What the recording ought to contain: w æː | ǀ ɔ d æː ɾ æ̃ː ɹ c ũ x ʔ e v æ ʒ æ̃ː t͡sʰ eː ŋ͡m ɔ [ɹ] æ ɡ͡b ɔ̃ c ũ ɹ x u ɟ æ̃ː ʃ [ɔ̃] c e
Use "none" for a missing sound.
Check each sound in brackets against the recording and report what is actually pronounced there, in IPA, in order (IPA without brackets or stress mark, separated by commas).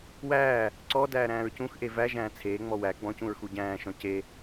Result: w, ɔ̃